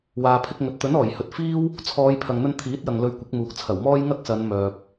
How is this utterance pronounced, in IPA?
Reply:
w aː˨ pʰ ɪ˧ k̚ ŋ ɵ˨ t̚ t̪ ɵ˨˥ n ɔː˨˩ j h ɵ˨˥ t̚ f iː˥ w | t͡sʰ ɔː˨˧ j pʰ ɐ˨ ŋ n̪ ɵ˧ n t̪ʰ iː˨˥ t̚ j ɐ˨ ŋ l ɵ˧ ɥ kʷ ɪ˨˥ k̚ m uː˨ k̚ t͡sʰ ɐ˨˩ w m ɔː˥ j ŋ ɐ˥ k̚ s ɐ˨˧ n m œː˨ p̚

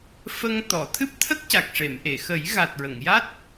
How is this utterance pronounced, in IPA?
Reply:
f ə˧ ŋ t̪ ɔ˨˩˨ t̪ʰ ɨ˦˥ p̚ t̪ʰ ə˦˥ k̚ c a˨˩ k̚ ʂ e˨˩˨ m ʔ e˨˩˨ x ə˨˩˦ j ɣ a˨˩ t̚ ɹ ə˨˩˨ ŋ j a˦˥ t̚

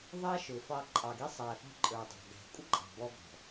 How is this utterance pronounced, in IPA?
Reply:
ðˤ ɑ˦ ʃ ʊ˨ f ɑ˧ ǃʼ ɑ˨ ɡ i˧ sˤ æ˨ f ɑ̤˧ ǃʼ ə˞˨ dˤ ɑ̤˨ ɡ æ̤˨ kʷʼ ə˦ ǃʼ ɑ̤˨ b ɔ˧ ɡ ɔ̤˨

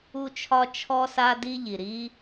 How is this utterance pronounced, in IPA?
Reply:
u˥ t͡ʃʰ ɒ˥ t͡ʃʰ ɔ˥ s a˥ d i˥ ʎ i˩ ɾ i˥

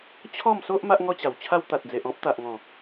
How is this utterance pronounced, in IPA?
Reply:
t͡ɕʰ ɔ˥˧ m s o˦ ʔ m a˦ ʔ ŋ ɔ˦ t͡ɕ a˨˩ w t͡ɕʰ a˦ w t̪ a˨ t̚ d͡z e˨ ʔ ɔ̃˦ p̚ t̪ a˨ ʔ ŋ ɔ̃˨˩

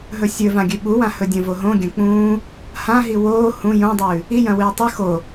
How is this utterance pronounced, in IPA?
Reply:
ɦ ɵ sʲ ɵ v ã ɡʲ ʉ ɓ u w ã h ɵ dʲ ɐ̃ v o ɦ õ ɡʲ ɐ̃ k͡p ũː | h ã ɦ i w oː h ũ j õ dˤ ʉː | i j ɐ̃ w ɨː tˤ ɨ x o

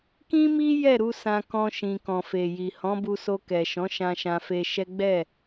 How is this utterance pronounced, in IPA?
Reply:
k ĩ˦ m i˦ j ɛ˦˨ ɾ u˧ s ã˧ k ɔ̃˧ ʃ ĩ˨ k ɔ̃˨ f e˨ j i˨ h ɔ̃˨˦ b u˧ s o˧ k ɛ˨ ʃ ɔ̃˨˦ ʃ ã˧ ʃ ã˧ f e˧ ʃ ɛ˦ ɡ͡b ɛ˦˨

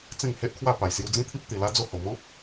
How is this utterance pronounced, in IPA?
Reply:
t͡s ẽ˥˧ ŋ h e˦ ʔ kʰ w a˥˧ p a˨˩ j s j u˧ d͡z ĩ˦ t̪ʰ i˦ p̚ t̪ i˨˩ l a˦ d͡z o˥˧ h o˨˩ m ɔ̃˦ p̚

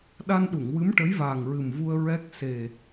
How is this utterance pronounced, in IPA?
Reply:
ɗ a˧ n ɗ u˨˩˨ ŋ w ɨ˧˥ m ʈ ə˧˥ j v aː˨˩ ŋ ɹ ɨ˨˩ m v u˧ ə̯ ɹ ɛ˦˥ k̚ s e˨˩

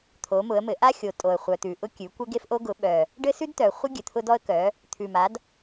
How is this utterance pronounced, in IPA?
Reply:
t̪ʰ o˩˥ m ʊ˩˥ ə̯ m ɘ˩˥ ʔ a˥ xʲ o˨˩ tʼ o˨˩ ə̯ χʷ œ˨˩ t̪ ʉ˨˩ ʔ ʊ˥ kʲ ʉ˩˥ kʷ ɘ˥ ɡ e˥ f ʔ o˥ ɡ ʊ˩˥ ɓ œ˨˩ | ɖ ɘ˥ s ʉ˥ d t̪ œ˨˩ χʷ ɘ˥ ɡʲ ɘ˨˩ t̪ʰ ʊ˥ d ɔ˥ ə̯ k œ˩˥ | t̪ʰ ʉ˨˩ m a˩˥ d

